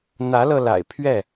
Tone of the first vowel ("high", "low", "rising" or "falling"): rising